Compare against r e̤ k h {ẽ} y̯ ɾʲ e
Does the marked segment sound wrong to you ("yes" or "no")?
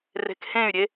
no